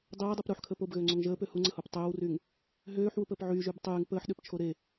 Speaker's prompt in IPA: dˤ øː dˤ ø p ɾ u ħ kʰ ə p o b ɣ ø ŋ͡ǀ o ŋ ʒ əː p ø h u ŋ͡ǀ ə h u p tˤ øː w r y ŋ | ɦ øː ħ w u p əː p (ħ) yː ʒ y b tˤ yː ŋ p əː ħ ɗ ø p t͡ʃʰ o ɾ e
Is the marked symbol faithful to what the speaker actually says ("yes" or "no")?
no